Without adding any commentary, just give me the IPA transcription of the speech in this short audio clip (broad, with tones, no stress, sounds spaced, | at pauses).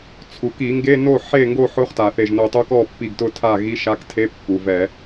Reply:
t͡sʰ u˩ k i˧˩˧ ŋ ɡ e˧˥˧ n o˥˨ ħ e˥˨ ŋ ɡ o˥˨ ħ ʊ˧˥˧ χ t a˩ θ e˧˩ ʒ n o˧˩ tˤ o˦˥ k ɔ˥˨ pː i˧˩ ɡ t ʊ˦˥ tʰ a˥˨ ɣ i˧˥˧ ʃ a˧˥˧ k tʰ e˧˥˧ pː u˩ v ɛ˧˩˧